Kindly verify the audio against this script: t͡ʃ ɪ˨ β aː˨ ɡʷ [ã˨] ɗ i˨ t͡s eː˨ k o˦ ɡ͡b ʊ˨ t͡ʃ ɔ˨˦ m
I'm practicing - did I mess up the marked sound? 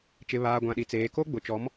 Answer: no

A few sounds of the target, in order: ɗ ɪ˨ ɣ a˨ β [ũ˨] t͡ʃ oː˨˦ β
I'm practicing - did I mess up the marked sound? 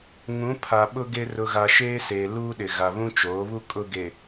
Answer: yes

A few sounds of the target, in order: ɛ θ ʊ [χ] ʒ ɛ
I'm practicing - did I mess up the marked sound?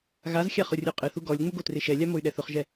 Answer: no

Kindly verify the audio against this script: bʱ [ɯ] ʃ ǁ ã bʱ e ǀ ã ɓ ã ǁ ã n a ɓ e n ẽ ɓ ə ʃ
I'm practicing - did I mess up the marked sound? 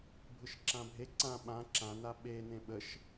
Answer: no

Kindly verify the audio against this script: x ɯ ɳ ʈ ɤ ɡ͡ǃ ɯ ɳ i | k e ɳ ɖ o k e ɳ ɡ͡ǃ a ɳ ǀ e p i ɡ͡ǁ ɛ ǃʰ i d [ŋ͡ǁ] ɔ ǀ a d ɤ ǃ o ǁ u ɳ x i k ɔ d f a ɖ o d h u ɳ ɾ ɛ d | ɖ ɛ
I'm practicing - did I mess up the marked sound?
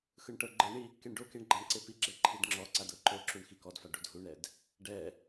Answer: no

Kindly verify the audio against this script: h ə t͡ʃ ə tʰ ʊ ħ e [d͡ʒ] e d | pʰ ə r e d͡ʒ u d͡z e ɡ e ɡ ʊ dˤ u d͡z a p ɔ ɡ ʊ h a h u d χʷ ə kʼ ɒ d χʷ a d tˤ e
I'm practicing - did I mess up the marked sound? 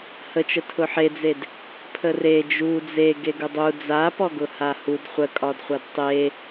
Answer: yes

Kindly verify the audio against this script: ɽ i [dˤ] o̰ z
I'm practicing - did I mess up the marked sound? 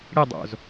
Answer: no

